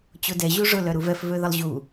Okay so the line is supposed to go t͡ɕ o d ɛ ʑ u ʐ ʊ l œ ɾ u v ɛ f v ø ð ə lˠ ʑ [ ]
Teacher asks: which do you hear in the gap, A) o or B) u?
B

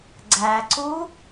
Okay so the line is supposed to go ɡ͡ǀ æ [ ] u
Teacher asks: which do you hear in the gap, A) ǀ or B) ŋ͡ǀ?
A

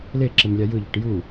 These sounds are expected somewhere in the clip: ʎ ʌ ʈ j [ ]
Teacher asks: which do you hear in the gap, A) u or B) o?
A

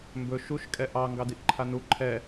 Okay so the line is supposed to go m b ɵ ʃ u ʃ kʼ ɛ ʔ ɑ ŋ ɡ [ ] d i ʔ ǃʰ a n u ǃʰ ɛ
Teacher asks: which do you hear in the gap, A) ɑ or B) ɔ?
A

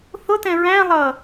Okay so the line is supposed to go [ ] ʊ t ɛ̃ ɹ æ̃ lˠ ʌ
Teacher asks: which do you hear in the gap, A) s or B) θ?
B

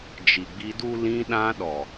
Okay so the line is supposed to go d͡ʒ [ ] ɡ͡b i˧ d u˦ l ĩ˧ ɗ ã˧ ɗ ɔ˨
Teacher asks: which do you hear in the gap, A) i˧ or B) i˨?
B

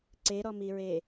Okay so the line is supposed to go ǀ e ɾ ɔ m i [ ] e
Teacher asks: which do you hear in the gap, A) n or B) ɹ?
B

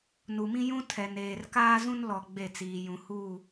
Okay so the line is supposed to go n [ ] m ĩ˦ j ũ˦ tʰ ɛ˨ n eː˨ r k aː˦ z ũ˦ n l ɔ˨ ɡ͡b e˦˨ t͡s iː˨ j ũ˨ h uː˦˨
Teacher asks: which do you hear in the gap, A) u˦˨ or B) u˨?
B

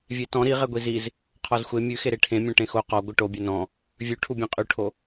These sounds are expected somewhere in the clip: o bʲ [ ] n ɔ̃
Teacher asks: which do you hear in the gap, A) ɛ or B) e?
A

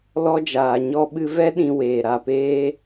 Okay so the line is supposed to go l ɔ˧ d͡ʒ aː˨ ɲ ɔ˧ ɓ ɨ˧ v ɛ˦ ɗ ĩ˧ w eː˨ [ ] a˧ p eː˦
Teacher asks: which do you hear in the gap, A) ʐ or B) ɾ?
B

